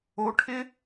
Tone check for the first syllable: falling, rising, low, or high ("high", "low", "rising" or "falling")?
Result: rising